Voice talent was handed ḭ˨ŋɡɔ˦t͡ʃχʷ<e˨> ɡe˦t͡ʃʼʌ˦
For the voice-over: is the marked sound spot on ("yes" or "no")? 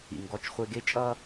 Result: no